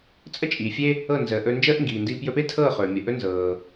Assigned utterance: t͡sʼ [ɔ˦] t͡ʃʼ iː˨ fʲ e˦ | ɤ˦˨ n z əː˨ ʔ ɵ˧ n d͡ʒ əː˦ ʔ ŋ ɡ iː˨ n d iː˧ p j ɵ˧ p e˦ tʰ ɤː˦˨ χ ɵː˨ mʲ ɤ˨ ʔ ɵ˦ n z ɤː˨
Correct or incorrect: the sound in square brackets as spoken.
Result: incorrect: ə˦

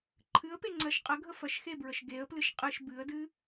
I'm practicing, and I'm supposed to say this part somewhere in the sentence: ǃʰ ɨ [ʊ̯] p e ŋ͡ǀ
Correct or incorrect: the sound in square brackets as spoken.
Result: incorrect: ə̯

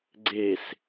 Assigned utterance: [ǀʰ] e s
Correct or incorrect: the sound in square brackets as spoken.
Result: incorrect: ɡ͡ǀ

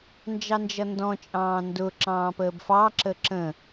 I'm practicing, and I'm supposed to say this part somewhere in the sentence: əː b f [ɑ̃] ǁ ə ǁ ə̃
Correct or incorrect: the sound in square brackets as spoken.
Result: incorrect: ɑ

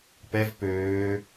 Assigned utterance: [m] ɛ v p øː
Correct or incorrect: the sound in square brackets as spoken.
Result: incorrect: p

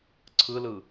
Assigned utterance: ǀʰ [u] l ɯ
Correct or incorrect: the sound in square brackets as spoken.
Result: incorrect: ɯ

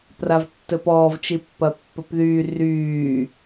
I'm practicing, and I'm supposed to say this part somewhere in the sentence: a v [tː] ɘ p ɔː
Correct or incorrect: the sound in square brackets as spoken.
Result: correct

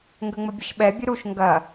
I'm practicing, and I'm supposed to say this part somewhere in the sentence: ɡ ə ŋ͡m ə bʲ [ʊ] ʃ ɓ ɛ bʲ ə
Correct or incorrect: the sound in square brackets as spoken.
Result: incorrect: ə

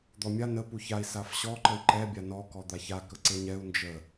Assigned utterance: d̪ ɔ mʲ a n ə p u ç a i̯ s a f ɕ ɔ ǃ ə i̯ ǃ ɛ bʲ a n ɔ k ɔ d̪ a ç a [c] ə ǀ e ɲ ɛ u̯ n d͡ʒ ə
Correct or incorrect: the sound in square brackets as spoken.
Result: incorrect: k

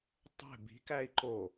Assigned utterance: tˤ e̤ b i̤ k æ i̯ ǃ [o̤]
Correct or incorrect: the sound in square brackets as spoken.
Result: incorrect: o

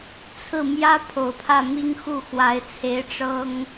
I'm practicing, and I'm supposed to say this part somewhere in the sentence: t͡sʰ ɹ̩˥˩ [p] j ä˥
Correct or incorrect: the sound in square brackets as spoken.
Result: incorrect: m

